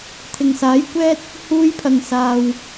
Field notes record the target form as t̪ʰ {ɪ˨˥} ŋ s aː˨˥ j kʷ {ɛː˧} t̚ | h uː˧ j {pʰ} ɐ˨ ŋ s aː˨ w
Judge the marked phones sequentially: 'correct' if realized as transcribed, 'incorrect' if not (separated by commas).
incorrect, incorrect, correct